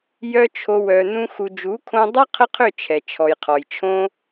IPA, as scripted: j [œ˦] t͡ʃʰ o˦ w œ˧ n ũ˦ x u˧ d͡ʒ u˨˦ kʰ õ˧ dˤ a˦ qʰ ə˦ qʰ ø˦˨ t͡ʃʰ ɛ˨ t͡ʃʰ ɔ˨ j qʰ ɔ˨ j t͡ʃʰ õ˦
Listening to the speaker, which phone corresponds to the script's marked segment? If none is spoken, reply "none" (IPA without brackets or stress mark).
œ˦